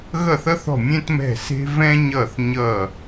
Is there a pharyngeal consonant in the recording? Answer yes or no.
no